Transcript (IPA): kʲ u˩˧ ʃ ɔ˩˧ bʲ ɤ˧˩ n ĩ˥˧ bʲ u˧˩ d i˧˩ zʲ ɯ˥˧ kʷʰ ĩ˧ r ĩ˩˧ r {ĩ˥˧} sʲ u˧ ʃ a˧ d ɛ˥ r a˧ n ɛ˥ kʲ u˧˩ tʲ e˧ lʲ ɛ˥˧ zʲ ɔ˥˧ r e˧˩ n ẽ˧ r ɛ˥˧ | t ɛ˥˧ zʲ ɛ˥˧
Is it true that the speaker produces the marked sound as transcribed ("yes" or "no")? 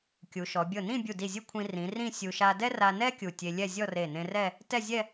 yes